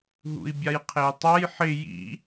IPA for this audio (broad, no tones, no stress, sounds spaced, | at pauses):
ɦ ṵ i̯ bʲ a j qʰ e y̯ tˤ a j ħ ɪ j ḭ